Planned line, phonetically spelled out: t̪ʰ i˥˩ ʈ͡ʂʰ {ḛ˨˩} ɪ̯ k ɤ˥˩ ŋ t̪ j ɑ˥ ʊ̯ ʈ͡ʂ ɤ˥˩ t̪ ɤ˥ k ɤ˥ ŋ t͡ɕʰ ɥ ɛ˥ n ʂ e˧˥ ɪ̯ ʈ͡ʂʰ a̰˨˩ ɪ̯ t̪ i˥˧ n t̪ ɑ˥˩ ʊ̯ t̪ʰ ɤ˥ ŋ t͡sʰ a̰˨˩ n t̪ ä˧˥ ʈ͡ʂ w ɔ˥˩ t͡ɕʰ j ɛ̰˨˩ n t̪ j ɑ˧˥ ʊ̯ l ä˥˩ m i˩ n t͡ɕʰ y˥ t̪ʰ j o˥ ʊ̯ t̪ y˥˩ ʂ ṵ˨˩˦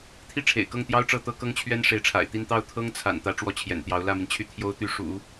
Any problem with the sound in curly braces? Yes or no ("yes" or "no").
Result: no